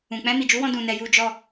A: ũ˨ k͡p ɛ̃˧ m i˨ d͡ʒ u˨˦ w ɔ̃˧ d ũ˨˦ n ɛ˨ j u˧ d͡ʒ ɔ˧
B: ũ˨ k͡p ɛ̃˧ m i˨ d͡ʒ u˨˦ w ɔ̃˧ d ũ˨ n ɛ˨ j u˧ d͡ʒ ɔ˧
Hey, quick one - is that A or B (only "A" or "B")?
B